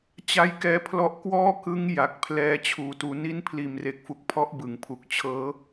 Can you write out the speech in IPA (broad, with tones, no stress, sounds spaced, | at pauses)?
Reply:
t͡ɕ a˧ j k ɛː˦˥ pʰ l ɔ˦˥ ʔ k w ɔː˥˩ k ɯ˦˥ ŋ j a˨˩ k̚ pʰ l ɛː˦˥ t͡ɕʰ uː˨˩ t uː˧ n i˦˥ n pʰ l iː˨˩ m r e˨˩ k̚ f u˨˩ k̚ pʰ ɔ˦˥ ʔ b ɯ˩˦ ŋ pʰ u˨˩ k̚ t͡ɕʰ ɤː˦˥